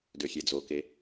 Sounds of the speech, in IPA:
d ø xʲ e d͡z o k e

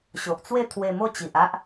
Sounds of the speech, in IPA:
ɕ o˨ ʔ t͡s w e˥˧ t̪ʰ w e˧ m o˥˧ t͡ɕ i˨ ʔ a˦ ʔ

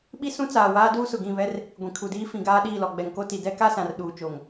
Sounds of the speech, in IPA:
ɓ i˦ s ũ˦ t͡s aː˨ w aː˦ d uː˦ s ʊ˨ ɡ ĩ˦˨ β ɛ˦ r | ɡʷ ĩ˨ kʰ u˨ d iː˦ f ĩ˨ ɡ aː˦ ɗ iː˦˨ l ɔ˨ ɡ͡b ɛ˨ ŋ k o˦ t i˨ d ɛ˦ k a˦ s ã˨ r ɗ uː˨ t͡ʃ o˨ ŋ

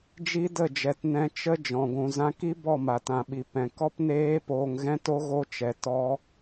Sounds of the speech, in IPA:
d͡ʒ i˦ d ə˦˨ d͡ʒ ɛ˨ t n ɛ̃˧ t͡ʃ ə˦ d͡ʒ ɔ̃˨ ɡʷ ũ˨ z ã˧ k i˦ b ɔ˦˨ m a˨ t ã˨ ɓ i˨ p ɛ̃˨ k ɔ˦ p n eː˦ p oː˧ ŋ ɣ ɛ̃˦ t o˦ ɣ o˦ t͡ʃ ɛ˨ t ɔ˦

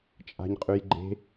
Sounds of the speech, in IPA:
t͡ʃʼ a̤ ɲ qʼ ʉ j ɡ͡ǃ e̤

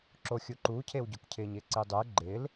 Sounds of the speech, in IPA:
ǁ o xʲ u ǃ u cʰ e w ɟ ʊ k cʰ ɪː ɲ ɪː ǀ i dˤ ɪː ɡ͡ǃ ɪː l

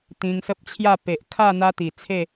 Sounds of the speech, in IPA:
t̪ ĩ˧ ŋ s ə˦ p̚ t͡ɕʰ j a˥˧ p e˨ ʔ kʰ a˥˧ n̪ a˦ t̪ i˨˩ t͡sʰ e˥˧

